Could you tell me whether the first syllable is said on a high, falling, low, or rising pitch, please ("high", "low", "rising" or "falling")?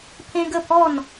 high